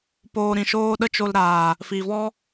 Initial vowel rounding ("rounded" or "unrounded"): rounded